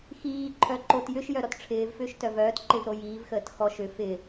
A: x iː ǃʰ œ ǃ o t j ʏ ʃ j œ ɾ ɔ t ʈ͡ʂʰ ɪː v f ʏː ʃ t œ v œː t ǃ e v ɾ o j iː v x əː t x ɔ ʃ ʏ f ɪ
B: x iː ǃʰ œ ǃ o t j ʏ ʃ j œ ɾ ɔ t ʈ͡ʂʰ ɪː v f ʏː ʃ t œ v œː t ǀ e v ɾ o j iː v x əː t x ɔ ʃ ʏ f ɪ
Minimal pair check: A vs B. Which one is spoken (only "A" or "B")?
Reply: A